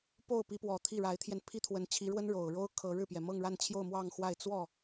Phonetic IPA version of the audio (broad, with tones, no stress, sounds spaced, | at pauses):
p o˥˩ ʊ̯ p i˧˥ p w ɔ˨˩ t̪ʰ i˥˩ ɻ a˧˥ ɪ̯ t̪ʰ j ɛ˧ n pʰ i˥ t̪ʰ w ə˧˥ n t͡ɕʰ i˧˥ ɻ w ə˥ n ɻ o˨˩ ʊ̯ ɻ o˥ ʊ̯ kʰ ɤ˧˥ ɻ ɻ̩˥˩ p j ɛ˩ m ɤ˥˧ ŋ ɻ a˥˧ n t͡ɕʰ j o˥˧ ʊ̯ m w ɑ˥˧ ŋ x w a˥˧ ɪ̯ t͡s w ɔ˥˩